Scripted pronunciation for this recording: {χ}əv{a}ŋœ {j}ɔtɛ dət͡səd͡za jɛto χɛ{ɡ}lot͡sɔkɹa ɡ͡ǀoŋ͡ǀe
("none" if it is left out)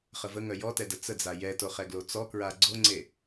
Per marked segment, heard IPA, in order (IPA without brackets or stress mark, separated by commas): χ, ə, j, ɡ